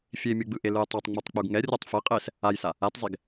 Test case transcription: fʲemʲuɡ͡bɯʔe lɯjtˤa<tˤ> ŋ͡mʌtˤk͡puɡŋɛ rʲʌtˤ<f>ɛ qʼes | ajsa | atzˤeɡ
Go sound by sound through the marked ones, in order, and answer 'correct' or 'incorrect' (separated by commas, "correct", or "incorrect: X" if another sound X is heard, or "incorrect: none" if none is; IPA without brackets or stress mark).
correct, correct